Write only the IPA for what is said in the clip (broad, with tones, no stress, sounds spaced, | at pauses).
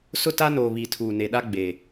s ʊ˦ t a˦ n o˨ β i˨ tʰ uː˨ n e˨ ɗ a˦ ɡ͡b e˨